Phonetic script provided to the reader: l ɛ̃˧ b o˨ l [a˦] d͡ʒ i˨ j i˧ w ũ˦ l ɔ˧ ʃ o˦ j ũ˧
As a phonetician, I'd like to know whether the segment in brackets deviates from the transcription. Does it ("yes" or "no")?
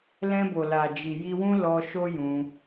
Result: yes